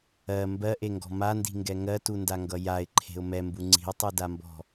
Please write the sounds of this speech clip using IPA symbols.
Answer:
ɜ m b ɜ ʔ e ŋ ɡ ɔ̤ m a n d i̤ ŋ ɡ ɛ ŋ ɜ t u n d a ŋ ɡ ʌ j a ɪ̯ ǃʰ e̤ ʊ̯ m ɛ m b u ŋ͡ǀ i̤ ʊ̯ tˤ u d a m b ɔ̤

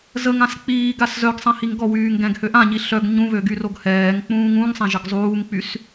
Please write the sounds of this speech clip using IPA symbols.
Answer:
z ə ŋ ã s k͡p iː ɡ a s z œ ɡ sˤ ɛ̃ h i ŋ ɡ ɔ w yː ŋ ɡ ɛ̃ ɡ h ø ʔ ã ɲ i ɬ œ ɡ ɲ ũ β ø ɡ y r o ɡ h ɛː ŋ k͡p ũː ŋ ũ ŋ sˤ ɛ̃ ʒ ə ɡ zˤ uː ŋ k͡p y s

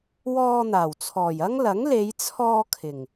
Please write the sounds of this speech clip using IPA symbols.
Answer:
w ɔː˧ n̪ aː˨˩ w t͡sʰ ɔː˨˩ j ɐ˥ ŋ l ɐ˨˥ ŋ l e˨˧ j t͡sʰ ɔː˧ kʰ ɪ˨˩ ŋ

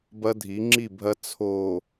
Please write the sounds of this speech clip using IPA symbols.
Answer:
b ɐ˦ dʱ i˨˦ ŋ͡ǁ i˦˨ bʱ ɐ˦ t͡sʰ o˨

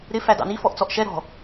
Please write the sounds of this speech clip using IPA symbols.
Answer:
ɾ ɪ f æ d ɑ̰ n i f ɔ ʔ t͡s ɔ ʔ ʃ ɛ ɾ ɔ̤

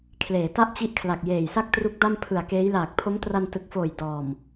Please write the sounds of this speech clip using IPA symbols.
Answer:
kʰ l eː˩˦ t a˥˩ ʔ t͡ɕ i˦˥ ʔ kʰ l a˨˩ k̚ j eː˨˩ j s a˥˩ k̚ t r u˦˥ k̚ d a˥˩ m pʰ ɯ˨˩ a̯ k eː˦˥ j l aː˨˩ k̚ pʰ o˦˥ m t r a˧ n t ɯ˨˩ k̚ f oː˨˩ j d ɔː˨˩ m

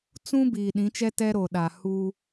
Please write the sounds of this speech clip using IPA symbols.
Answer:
t͡s ũ˦ b iː˨ ɗ ĩ˨˦ t͡ʃ ɛ˦ t ɛ˦ ɾ o˨ ɗ a˨ h u˦

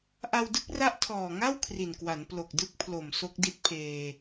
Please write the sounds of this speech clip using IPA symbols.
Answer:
ʔ a˧ w d ɯ˦˥ k̚ r a˦˥ ʔ tʰ ɔː˨˩ ŋ a˥˩ w kʰ r i˨˩ n k w a˩˦ n p l o˨˩ k̚ d ɯ˦˥ k̚ pʰ l o˨˩ m s o˦˥ k̚ d i˦˥ t̚ pʰ eː˧

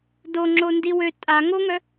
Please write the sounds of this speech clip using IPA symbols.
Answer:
d o ŋ͡ǁ o n d i w ø tʼ a ŋ o ŋ œ

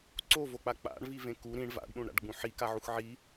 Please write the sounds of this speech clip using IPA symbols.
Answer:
ǀ o v o k͡p a k͡p a̰ ɳ v i v ẽ k u ɾ ĩ ɳ v a̰ ɖ ɗ ũ ɳ ɾ a̰ ɖ ɡ͡b ũ ħ i k a ʕ u x ʕ i

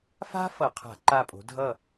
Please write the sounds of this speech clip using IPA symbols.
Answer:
f a̤˥ f ʌ˧˩˧ qʰ a̤˧˩˧ ǃ a˦˨ pʼ o̤˨˦ dʱ ʌ˦˨

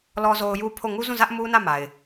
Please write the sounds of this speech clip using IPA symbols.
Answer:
l ɔ˨ z o˨ ʊ̯ j u˦ pʰ o˦˨ ŋ u˦ z ũ˦˨ z ä˦ ʔ m u˦ n ä˦˨ m a˨ ɪ̯

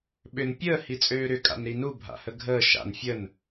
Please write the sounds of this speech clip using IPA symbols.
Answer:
ɓ ʏ n pʲ əː h i t͡sʼ øː ɾ ʏ kʼ a̰ n ɾ i n u bʱ a̰ h ə ɡʱ əː ʃ a̰ n fʲ ə n

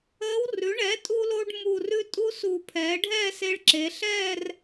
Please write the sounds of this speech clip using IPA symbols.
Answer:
əː˧˥ w r ʉ˩˥ ɳ ɛ˩˥ tʼ u˧ l o˧ ɖ m u˨˩ r ʉ˧ tʼ u˧ s uː˨˩ pʰ ɛː˩˧ ɖʱ ɛ˥˧ s e˧ ɭ ǁ e˩˧ ɬ ɛː˥˧ r

